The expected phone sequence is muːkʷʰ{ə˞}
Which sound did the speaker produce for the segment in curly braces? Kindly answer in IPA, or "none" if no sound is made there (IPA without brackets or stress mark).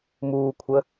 ə